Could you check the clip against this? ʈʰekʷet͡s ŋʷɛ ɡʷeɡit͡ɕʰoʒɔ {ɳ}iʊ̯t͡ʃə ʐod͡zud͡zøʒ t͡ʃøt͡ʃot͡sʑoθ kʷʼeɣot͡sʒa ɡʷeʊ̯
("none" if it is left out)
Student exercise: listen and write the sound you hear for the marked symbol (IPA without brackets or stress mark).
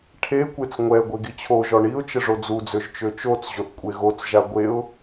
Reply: ɳ